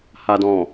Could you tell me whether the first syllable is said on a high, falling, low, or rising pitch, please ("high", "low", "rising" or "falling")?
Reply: low